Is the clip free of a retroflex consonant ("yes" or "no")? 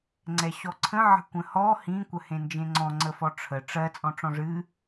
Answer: no